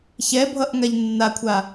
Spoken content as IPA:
çɛbʱʌʔŋaʎ nːakʷʰa

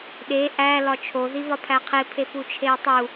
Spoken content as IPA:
ɗe ʔæ lɒt͡ʃʰoðiβɒ pʰæqʰepʰe put͡ʃʰejtˤu

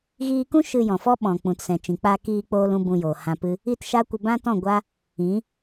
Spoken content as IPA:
ɣiː˧kũ˦ ʃɨ˧jɔ̃˨fɔ˦ ɓɔ̃˨ k͡pũ˨tsɛ̃˨t͡ʃĩ˨ k͡pa˧ kiː˧k͡poː˧l ũ˦bũ˧jo˨ hã˧pɨ˦ | i˦˨tʃa˦kʷə˧ bã˦tɔ̃˦˨ɡʷa˦ | ĩ˨˦

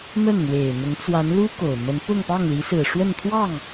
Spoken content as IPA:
mə˥˩nn̪we˨˩ɪ̯n̪ʊ˧˥ŋ t͡swa˧˥nlu˥ ko˨˩ʊ̯mə˧˥n pʊ˥˧ŋpɑ˥˩ŋli˧˥sɹ̩˨˩ ʂwə˥˧nt̪ʰwɑ˥˩ŋ

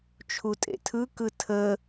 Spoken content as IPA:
t͡ʃʰutʼḛtʰɯkɯ tʰə

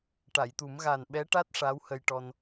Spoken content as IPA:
ʈa˨˩˨jt̪u˨˩˦m ɣaː˨˩n ɓɛ˧˥ʈa˦˥t̚ ʂa˧˥whə˧jʈɔ˧n

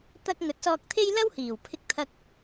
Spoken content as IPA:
t̪ɐ˧k̚ ŋɵ˨˥t̚sɔː˧k̚t̪ʰe˥j lɐ˥whiː˨˩wpʰɪ˧k̚t̪ʰɐ˧k̚

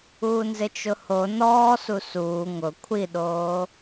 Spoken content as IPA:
uːnzɪt͡ʃʊho nɔːsu suː ŋʊ kʷʰiɗoː

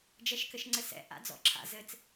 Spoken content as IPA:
d͡ʒɛʃkɘʃŋ͡ǀɘsɛ̰ ʔa̰d͡zɔ̰ǁʰa̰ zɘt͡s

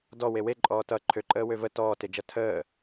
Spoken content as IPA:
dɔ wewe ǃʼɔːtʌ ǃʰøǃʼəː wøvə tɔːted͡ʒʌ tʰəː

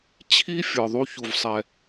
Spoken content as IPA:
t͡ɕʰi˦ fʲə˞˨ðˤu˦ çu˨vsˤɛ˨

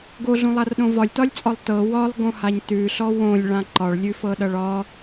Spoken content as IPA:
ɡoɮũlˠarɗõ vɒlʲtɒlʲt͡sʼɒlˠ tɤ wɒlˠɡõhaɲ tʉɬɔ wõlʲɭã ǃɒɭlʲʉfɤɗʌɭ ɒ

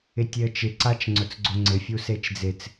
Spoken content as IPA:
ɪtʲeə̯t͡ʃɪ ǀat͡ʃŋ͡ǀʊt͡sɡ͡ǀoŋ͡ǀɪ fʲuset͡ʃd͡zɪt͡s

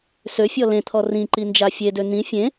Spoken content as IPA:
søfʲɔ lẽt̪ʰɔ rĩǃi nd͡ʒafʲedø n̪ĩ fʲẽ

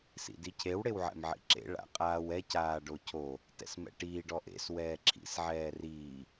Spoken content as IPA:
sḭdicʰew ɽewʕɛ̰mʕḭǁḛ ɭa̰qʼaːwɛc aːɖocʰo | tɛ̰smɛ̰ʈiːɖ ɔʔḛs wɛːǁʰḭs ʕɛːriː

